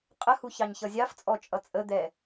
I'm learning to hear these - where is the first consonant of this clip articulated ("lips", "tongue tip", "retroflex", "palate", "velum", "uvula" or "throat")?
uvula